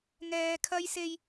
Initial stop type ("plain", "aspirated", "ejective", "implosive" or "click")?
aspirated